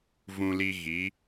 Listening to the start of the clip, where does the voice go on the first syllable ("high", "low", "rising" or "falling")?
high